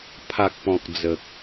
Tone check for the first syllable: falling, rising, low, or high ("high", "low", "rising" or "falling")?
low